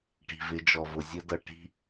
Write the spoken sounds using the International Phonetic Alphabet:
ʈi̤˨vɪ˨˦d͡ʒɔ˨vʊ˨ zʲə˦dʌ˨ ʈi̤˦

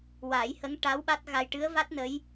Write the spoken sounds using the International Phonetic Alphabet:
wa˨˩˦jhə˧˥ŋ ʈa˧˥w ɓa˦˥t̚ɣa˧j ʈɨ˧˥ə̯va˦˥t̚ nə˧˥j

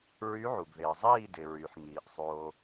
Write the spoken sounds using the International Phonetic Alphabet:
ɹy˧˥ʕu˩ɡðɪː˩zˤiː˥˨ dɪ˩ɹy˩ħŋiː˩ʔ sˤoː˩

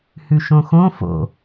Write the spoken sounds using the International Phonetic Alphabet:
hʉʃõxõ fo̰

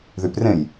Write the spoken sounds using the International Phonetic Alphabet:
ðyprẽj

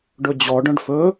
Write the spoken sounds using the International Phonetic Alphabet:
ɖɵd͡ʑɔ ɖœ̃ɖfɵ

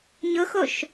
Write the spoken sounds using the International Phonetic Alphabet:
ɲʊxoʃ

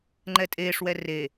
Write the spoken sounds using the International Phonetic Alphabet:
ŋ͡ǃɛtʼeːʂwɛ re

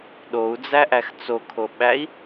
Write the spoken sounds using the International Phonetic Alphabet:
ɗou̯d͡zæʔæx t͡sokʰoɓæi̯

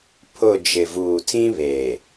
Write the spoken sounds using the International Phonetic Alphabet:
pʰʊ˦˨ d͡ʒɪ˨vuː˨tʰĩ˦ βeː˨

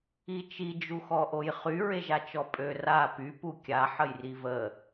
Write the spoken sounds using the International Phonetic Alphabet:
it͡ʃi d͡ʒuxɔʔojχy ɹeʒat͡ʃɔpʼø ra py pukʲa ħəjrivə

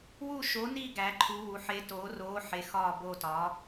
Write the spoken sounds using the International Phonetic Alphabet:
wu˦˨ʃo˨˥ni˦˨ ɡæ˨˥ǃʰu˨˥wu˨˥ ħe˨˥toː˨˥roː˨˥ ħe˨˥xɒː˦˨ bo˦˨tɒ˨˥

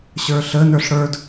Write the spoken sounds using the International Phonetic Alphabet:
ɕə˞ɬə nə˞ɬɽə˞d

